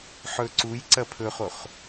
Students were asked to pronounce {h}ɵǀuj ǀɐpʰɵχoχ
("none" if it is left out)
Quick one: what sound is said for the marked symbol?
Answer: ħ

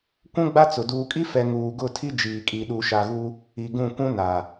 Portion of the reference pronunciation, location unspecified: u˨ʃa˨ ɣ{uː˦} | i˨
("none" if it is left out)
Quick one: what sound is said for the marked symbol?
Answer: u˦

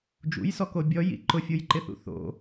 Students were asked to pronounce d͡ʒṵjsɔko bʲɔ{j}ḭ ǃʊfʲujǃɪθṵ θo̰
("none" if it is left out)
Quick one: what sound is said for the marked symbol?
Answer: j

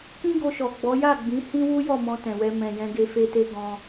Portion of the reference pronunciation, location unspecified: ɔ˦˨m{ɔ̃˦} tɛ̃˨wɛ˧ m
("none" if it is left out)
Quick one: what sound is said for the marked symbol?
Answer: ɔ̃˧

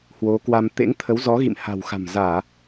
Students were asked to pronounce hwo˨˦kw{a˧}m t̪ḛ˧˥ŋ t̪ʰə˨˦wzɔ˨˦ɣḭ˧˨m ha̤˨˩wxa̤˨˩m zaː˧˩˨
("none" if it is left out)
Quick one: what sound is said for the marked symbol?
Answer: a˧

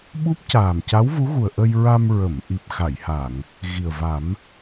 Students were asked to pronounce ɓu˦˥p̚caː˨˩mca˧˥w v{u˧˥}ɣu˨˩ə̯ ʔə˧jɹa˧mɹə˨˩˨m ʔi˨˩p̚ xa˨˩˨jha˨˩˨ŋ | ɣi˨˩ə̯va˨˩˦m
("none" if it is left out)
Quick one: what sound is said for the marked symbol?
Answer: u˧˥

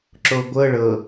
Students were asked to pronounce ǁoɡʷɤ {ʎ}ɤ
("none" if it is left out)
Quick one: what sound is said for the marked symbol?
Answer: ɭ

